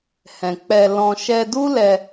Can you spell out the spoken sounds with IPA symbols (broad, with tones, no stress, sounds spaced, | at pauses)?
h ɛ̃˨ k͡p ɛ˧ l ɔ̃˧ ʃ ɛ˧ d u˦ l ɛ˧